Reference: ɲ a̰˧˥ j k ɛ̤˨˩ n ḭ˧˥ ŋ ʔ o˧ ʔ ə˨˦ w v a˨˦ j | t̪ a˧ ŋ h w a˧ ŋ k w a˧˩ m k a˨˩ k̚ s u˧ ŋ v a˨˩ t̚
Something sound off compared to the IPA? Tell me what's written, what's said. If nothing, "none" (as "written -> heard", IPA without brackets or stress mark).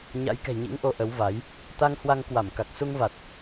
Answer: n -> ɲ